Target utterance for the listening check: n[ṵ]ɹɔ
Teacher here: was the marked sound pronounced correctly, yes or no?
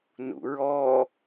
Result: yes